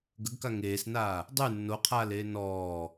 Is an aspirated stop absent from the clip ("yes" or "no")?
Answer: no